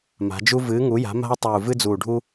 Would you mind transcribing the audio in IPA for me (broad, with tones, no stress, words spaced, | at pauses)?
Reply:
ma̤˩˧d͡ʒu˦ vɨː˩˧ŋu˩˧ja̤˩˧ ma̤˦o̯tˤuː˨˩ vɨ˦d͡zuː˨˩ɖʱu˦